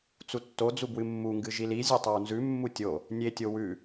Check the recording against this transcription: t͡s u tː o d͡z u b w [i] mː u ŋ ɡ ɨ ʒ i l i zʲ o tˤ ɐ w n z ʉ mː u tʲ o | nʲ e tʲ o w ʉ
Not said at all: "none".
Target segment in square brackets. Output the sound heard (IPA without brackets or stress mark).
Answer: ɨ